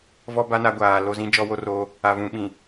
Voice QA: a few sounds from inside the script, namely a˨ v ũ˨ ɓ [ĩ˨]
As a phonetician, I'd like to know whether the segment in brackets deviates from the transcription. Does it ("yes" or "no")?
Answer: no